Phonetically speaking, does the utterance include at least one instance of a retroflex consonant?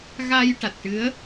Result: yes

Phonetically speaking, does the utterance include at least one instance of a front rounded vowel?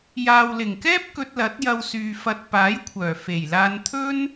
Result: yes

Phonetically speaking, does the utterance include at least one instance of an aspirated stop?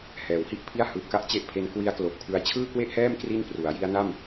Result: yes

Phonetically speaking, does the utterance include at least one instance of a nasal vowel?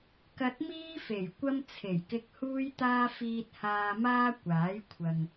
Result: no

